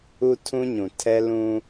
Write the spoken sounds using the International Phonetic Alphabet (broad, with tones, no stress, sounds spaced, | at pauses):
u˦ tʰ ũ˦ ɲ ũ˨ tʰ ɛ˦ l ũ˦